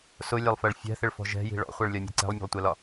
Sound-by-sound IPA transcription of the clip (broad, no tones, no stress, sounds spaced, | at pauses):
s ʊ lʲ ɑ lˠ f ɜ ɭ fʲ æ̤ θ ɪ ɭ f ɔ̤ ʒ ɛ̤ j i̤ ɭ ɔ̰ χʷ ɜ ɭ lʲ ɒ mʲ æ̤ ǀ ɛ̤ lˠ mʲ æ̤ lˠ tʷ ɛ l ɒ